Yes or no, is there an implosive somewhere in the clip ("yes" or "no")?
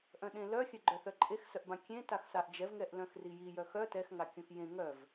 yes